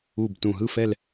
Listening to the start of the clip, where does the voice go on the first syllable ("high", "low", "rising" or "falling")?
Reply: low